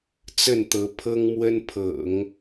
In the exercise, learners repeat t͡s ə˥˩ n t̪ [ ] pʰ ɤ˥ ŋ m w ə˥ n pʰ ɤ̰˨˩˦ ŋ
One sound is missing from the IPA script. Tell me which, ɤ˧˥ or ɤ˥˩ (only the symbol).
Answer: ɤ˧˥